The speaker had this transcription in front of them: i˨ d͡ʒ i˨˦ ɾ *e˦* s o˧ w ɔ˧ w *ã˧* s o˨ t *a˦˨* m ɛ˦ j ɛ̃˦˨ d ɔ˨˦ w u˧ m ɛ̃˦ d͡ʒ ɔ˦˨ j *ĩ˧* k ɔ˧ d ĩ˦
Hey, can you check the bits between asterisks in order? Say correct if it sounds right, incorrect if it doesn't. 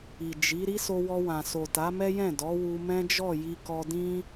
incorrect, incorrect, incorrect, incorrect

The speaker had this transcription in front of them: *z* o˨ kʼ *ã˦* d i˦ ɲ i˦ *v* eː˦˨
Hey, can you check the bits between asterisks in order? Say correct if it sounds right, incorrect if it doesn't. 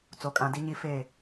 incorrect, incorrect, incorrect

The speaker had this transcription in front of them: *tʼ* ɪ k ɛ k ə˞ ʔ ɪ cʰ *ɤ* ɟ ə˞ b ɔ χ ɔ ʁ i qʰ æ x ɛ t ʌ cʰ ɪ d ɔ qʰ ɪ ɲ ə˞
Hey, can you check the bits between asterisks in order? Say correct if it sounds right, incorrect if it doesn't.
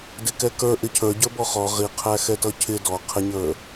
incorrect, incorrect

